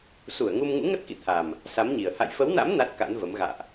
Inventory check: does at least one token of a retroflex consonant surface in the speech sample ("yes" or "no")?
no